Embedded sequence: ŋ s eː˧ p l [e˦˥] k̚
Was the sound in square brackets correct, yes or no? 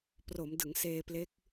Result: yes